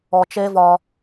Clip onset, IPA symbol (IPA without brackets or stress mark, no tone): ɔ